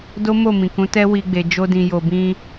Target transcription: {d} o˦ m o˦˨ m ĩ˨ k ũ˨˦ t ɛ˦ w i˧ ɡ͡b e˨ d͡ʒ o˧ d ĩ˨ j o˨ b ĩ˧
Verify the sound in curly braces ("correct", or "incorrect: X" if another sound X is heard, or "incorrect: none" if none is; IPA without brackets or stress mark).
correct